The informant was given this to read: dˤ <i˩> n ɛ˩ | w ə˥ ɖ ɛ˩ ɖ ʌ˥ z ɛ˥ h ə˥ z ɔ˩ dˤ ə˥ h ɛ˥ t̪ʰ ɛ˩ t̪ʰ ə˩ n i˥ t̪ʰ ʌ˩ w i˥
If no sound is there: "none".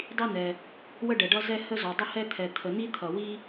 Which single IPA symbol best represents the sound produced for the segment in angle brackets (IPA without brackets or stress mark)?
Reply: i˥